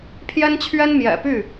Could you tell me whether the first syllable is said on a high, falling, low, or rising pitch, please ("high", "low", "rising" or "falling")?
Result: high